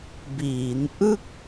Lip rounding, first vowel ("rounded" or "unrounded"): unrounded